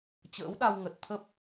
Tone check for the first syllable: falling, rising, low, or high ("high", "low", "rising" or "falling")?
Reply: rising